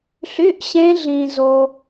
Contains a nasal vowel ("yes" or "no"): yes